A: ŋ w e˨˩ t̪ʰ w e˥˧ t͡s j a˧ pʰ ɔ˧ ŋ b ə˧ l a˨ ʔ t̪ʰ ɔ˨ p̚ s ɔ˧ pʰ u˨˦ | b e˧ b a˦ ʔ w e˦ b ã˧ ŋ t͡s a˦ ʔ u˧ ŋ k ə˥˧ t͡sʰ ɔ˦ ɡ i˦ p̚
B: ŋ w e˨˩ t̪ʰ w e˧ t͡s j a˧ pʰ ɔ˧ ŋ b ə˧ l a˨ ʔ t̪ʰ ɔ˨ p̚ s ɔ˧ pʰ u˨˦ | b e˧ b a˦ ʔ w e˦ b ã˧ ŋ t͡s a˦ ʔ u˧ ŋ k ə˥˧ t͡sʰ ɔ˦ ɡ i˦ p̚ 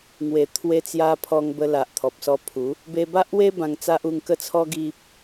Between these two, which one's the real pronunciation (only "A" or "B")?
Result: B